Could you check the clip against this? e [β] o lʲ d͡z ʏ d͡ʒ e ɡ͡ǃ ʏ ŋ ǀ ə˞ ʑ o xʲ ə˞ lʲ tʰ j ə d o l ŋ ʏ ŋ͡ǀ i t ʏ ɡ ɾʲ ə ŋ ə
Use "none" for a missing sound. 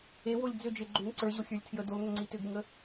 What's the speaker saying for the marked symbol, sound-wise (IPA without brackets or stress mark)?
w